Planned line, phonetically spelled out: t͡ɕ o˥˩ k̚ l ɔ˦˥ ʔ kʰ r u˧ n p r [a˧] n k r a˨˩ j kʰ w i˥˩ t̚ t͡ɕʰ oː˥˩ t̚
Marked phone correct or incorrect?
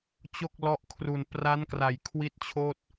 incorrect